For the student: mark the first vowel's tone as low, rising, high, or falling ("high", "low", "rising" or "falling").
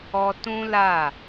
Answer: high